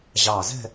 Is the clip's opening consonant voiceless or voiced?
voiced